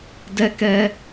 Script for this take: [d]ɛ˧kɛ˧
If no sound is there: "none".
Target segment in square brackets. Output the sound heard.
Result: d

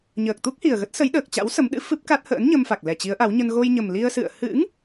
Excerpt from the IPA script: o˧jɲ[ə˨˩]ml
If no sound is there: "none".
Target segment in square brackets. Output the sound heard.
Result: ə˨˩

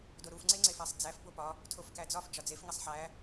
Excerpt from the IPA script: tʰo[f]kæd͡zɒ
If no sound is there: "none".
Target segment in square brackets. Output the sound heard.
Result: f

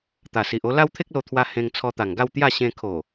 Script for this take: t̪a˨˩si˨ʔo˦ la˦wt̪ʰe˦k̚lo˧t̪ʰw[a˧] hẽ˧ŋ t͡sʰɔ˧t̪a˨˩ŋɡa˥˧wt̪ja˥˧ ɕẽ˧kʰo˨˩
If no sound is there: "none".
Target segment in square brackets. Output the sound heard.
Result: a˧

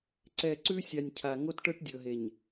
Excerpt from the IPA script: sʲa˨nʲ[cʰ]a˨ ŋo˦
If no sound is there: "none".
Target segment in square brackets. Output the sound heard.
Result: cʰ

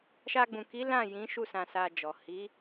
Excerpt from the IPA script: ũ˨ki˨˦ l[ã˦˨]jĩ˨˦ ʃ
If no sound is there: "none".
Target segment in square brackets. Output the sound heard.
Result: ã˦˨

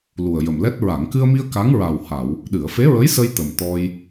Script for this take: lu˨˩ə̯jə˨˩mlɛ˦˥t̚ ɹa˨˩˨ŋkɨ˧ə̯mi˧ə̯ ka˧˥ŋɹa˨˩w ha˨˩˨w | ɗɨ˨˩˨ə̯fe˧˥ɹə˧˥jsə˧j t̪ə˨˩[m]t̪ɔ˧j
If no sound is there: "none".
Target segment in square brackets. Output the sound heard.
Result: m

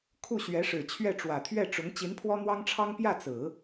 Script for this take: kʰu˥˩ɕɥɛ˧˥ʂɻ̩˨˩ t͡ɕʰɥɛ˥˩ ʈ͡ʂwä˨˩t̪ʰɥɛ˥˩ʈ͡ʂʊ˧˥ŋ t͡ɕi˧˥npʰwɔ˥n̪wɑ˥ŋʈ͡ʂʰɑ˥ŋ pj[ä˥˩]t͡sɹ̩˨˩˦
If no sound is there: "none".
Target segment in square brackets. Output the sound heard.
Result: ä˥˩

